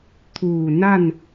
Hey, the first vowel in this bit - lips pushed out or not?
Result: yes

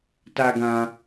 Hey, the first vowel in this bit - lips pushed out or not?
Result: no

